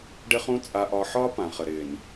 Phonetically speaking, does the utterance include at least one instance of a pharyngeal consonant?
yes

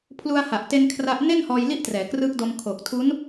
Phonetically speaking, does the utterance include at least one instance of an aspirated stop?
yes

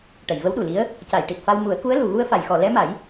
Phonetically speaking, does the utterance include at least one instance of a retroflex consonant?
yes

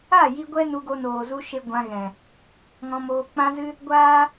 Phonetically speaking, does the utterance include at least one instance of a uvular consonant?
no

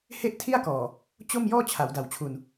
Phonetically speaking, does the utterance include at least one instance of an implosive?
no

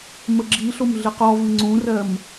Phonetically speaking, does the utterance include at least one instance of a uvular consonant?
yes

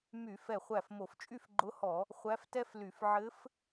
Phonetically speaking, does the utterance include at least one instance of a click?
yes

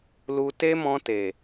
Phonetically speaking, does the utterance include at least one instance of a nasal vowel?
yes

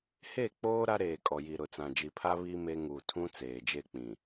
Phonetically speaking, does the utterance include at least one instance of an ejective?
yes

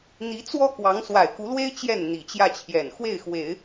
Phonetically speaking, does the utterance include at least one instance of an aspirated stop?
yes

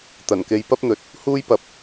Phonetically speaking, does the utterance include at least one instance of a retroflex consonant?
no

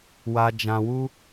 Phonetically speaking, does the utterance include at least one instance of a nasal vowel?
yes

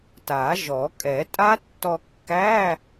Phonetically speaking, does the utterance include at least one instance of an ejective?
yes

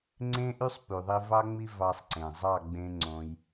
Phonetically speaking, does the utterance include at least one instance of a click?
yes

